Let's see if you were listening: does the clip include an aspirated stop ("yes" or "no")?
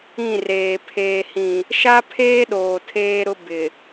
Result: yes